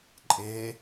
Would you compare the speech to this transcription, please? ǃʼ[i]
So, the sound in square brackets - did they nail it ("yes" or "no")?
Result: no